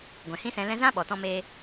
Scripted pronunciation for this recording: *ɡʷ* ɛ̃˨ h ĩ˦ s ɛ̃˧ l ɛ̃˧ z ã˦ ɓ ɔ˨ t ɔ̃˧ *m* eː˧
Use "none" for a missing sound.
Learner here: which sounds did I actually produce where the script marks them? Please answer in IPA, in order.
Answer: ɡʷ, m

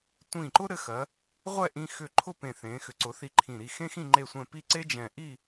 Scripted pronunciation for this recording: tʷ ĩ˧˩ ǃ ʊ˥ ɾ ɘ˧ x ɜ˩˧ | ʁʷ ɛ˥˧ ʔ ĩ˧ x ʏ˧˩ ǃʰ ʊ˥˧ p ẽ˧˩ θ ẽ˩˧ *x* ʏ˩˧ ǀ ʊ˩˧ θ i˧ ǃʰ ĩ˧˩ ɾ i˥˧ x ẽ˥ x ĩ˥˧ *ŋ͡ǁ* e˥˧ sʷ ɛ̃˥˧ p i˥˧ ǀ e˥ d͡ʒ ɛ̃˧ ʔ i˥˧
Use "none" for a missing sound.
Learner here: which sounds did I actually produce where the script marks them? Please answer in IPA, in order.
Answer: x, ŋ͡ǃ

